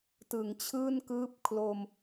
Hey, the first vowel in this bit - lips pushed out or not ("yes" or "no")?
no